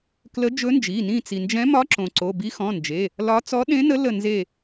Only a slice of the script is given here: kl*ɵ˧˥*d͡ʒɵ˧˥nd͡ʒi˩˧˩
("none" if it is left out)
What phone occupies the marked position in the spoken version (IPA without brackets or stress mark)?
ə˧˥